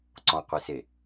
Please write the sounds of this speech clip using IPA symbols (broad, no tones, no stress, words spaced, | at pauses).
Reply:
ǀɔ̃qʷise